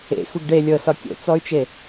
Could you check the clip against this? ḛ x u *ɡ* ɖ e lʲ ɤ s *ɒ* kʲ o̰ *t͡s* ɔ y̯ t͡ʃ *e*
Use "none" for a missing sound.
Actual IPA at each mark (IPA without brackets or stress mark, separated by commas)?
ɡ, ɒ, t͡s, e